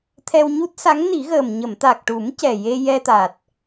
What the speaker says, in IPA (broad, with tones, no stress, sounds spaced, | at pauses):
t̪ʰ ɛ˧ w ɲ u˦˥ t̚ s a˧˥ ŋ n i˨˩˦ ɣ əː˨˩ m ɲ ə˨˩˨ m t̪ a˨˩ k̚ ʈ u˨˩˦ m c ɛ˨˩ j e˧ j ɛ˧ t̪ a˨˩ t̚